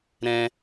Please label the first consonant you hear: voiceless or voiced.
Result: voiced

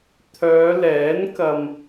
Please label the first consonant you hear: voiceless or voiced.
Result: voiceless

